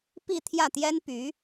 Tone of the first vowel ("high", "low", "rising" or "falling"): falling